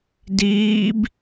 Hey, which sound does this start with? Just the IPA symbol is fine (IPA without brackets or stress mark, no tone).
d